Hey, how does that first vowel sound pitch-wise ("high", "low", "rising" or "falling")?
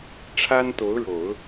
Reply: high